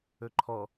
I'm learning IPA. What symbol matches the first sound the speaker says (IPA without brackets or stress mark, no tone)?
ɵ